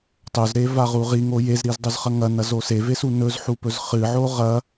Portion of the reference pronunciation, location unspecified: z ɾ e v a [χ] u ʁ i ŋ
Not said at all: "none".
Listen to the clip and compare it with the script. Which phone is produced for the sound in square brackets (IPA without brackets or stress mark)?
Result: ʁ